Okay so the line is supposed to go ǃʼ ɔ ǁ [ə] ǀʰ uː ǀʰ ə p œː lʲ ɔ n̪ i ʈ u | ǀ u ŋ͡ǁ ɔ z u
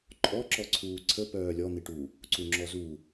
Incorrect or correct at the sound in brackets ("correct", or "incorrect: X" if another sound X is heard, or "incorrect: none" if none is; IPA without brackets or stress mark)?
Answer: incorrect: ɔ